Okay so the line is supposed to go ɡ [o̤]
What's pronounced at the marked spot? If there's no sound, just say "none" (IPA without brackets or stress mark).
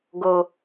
o